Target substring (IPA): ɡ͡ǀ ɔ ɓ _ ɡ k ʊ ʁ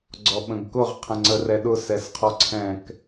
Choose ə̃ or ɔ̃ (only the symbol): ə̃